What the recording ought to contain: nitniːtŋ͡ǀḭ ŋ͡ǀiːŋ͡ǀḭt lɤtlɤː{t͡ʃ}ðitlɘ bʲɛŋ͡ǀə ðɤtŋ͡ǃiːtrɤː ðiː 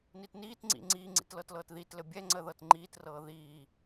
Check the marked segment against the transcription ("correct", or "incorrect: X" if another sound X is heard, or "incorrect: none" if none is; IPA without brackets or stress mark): incorrect: t